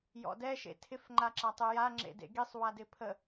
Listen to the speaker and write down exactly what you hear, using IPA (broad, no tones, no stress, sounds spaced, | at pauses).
j ɔ̰ d ɛ ʃ ḛ tʰ ɪ f ŋ͡ǃ a ǁ a tˤ ɪ j a ŋ͡ǁ ḛ d ḛ ɡ i sˤ w a d ɪ pʰ ə